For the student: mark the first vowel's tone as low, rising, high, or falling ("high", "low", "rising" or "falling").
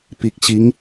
low